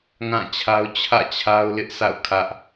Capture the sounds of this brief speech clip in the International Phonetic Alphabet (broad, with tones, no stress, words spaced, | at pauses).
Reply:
ŋã˦˨t͡ɕʰa˦ʊ̯ t͡ɕʰä̰˦˨t͡ɕʰa˦ʊ̯lɪ˦ʔ sa̰˦˨ʊ̯kʰä˦ʔ